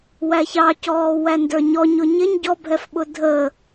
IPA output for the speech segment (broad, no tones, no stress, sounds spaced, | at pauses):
w æ ç ɑ c ɔː w æ n d ə˞ ɲ ɔ ɲ ʊ ɲ ɪ ɲ ɟ ɔ bʱ ɛ f ɓ ʊ dʱ ə